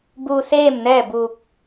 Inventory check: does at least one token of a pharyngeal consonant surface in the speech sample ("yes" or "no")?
no